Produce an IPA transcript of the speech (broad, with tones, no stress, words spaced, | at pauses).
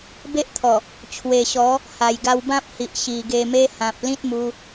be˦ʔt̪ʰɔ˨˩ | t͡ɕʰwe˨˩ɕɔ˨˦ | ha˨˩jɡa˧wbã˦p̚hi˨ʔ ɕi˨˩ɡe˧me˦ hã˨p̚ lĩ˦t̚mu˧